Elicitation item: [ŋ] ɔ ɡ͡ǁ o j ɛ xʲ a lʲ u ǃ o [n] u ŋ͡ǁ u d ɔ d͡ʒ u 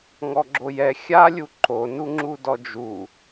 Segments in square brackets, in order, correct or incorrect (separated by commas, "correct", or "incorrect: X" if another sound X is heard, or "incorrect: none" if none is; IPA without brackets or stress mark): correct, correct